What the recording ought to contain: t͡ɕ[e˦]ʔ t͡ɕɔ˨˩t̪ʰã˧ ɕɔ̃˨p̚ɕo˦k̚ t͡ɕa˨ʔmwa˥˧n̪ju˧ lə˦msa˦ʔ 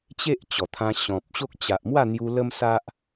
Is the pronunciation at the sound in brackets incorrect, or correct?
correct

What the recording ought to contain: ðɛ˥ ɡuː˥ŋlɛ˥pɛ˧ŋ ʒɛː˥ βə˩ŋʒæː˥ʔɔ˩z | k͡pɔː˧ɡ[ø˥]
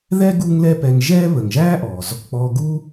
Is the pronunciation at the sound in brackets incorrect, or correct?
incorrect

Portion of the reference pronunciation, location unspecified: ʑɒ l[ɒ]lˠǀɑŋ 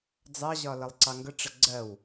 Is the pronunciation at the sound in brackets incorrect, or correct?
incorrect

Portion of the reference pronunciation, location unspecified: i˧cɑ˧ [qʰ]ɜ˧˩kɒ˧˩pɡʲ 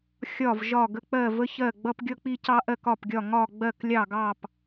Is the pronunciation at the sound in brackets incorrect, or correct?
incorrect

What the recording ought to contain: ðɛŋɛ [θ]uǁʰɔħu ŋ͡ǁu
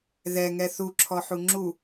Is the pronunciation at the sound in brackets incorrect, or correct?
correct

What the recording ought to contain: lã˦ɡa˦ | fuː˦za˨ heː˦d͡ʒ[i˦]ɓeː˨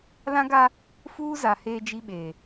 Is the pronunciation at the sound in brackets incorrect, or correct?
correct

